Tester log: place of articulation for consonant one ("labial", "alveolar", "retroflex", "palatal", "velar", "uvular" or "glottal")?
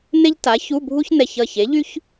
alveolar